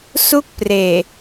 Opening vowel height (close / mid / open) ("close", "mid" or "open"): close